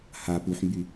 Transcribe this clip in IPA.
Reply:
h a p u ħ m b y

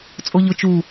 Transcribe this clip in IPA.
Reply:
t͡sʼ o ʎ ʊ t͡ʃ u

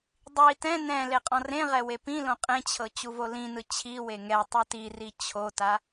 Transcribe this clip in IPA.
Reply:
dˤ i t ɛ̃ n ɛ̃ l e qʼ ɔ̃ r ẽ ʁ ɛ w e p ĩ l õ qʼ ẽ t͡ɕʰ ɤ t͡ɕ u v o l ĩ n ɯ t͡ɕʰ i w e ŋ ɛ tˤ u t i r i t͡ɕʰ o t a

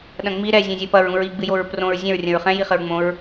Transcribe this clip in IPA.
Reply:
ɗ ɐ̃ ŋ͡m i ɾ ɛ zʲ ɛ̃ zʲ ɛ p ɐ ɹ ũ ɹ i ɡ͡b ɨ j o ɹ p r õ ɹ zʲ ɛ̃ ɹ rʲ ɐ̃ ɹ χ ɛ̃ j i χ ɘ ɹ ŋ͡m õ ɹ

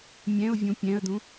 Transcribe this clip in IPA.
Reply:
mʲ ɛ̃ ʊ̯ vʲ ũ pʲ ɛ̃ ə̯ d ũ

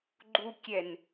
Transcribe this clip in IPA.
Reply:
ɡ͡ǃ u kʲ ɛ n

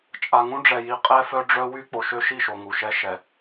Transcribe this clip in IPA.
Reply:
t͡ʃʼ a˨ ŋ ũ˦ ɖ͡ʐ ɛ˨ j i˨ qʼ ɛ˦ f œ˦ ɖ͡ʐ œ˦ w y˦ k͡p o˨ ʃ ø˦ ʃ i˦˨ ʃ o˨ ŋ u˨ ʃ ɛ˦ ʃ ɛ˨

